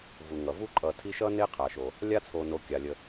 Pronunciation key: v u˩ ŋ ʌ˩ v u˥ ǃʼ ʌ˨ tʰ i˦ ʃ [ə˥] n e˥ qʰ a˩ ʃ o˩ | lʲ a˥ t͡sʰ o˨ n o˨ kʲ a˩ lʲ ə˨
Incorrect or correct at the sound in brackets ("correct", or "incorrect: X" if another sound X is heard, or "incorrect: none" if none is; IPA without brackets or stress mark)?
incorrect: ʌ˥